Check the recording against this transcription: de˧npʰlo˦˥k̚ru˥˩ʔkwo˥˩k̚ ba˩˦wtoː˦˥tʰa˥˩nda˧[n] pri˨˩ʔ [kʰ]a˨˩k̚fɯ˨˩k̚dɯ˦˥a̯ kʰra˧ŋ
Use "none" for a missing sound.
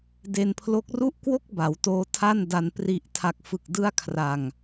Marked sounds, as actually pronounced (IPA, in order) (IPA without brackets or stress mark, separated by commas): n, tʰ